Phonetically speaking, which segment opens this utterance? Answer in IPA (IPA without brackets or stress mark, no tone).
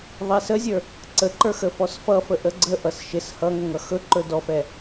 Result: ðˤ